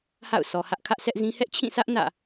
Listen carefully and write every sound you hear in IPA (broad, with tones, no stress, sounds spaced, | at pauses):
h a̰˦˨ ʊ̯ sʰ ɔ˨ h ä˦ ʔ kʰ ä˦ ʔ sʰ ɛ˦ ʔ z ĩ˦ h ɛ˦ ʔ t͡ɕʰ ĩ˦˨ s ä˦ ʔ n ä̰˦˨